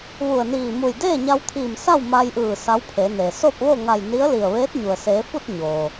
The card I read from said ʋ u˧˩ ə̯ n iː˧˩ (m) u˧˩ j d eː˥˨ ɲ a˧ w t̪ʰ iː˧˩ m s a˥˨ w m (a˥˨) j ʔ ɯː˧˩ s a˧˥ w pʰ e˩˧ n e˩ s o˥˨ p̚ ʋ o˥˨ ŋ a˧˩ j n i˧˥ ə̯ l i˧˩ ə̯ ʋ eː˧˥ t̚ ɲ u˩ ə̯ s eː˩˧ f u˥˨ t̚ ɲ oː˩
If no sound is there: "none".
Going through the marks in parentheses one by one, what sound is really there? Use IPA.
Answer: m, a˧

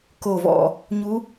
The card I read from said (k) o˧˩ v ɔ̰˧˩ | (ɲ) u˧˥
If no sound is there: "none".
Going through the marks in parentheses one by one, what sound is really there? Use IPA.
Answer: k, ɲ

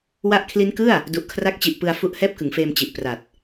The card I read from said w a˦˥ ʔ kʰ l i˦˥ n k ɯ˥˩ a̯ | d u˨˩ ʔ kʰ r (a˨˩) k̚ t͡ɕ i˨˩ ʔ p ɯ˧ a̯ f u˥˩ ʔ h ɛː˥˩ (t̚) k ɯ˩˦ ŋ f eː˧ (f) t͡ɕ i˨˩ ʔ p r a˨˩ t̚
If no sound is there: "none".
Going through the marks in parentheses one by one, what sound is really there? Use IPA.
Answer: a˦˥, p̚, m

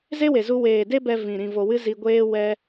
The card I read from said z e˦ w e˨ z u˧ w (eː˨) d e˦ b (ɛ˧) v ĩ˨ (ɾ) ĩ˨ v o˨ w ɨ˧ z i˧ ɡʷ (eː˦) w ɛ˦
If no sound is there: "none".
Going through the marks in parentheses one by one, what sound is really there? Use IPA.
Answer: eː˨, ɛ˧, ɾ, eː˦

